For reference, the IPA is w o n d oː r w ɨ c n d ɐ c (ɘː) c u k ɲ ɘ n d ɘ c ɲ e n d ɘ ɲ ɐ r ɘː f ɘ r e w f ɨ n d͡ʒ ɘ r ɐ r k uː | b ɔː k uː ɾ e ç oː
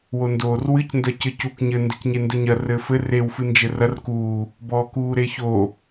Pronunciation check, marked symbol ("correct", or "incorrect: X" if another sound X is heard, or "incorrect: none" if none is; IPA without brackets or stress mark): incorrect: ɘ